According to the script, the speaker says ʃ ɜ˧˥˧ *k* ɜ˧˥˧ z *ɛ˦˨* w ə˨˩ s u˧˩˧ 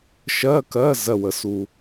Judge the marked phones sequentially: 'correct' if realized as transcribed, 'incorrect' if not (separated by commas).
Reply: correct, incorrect